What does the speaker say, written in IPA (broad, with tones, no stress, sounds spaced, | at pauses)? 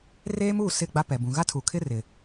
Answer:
r eː˦ m uː˦˨ s ɪ˦˨ ɡ͡b a˦ p ɛ˨ b ũ˨ ɣ a˦ tʰ u˨ kʰ ɪ˦ r ɪ˨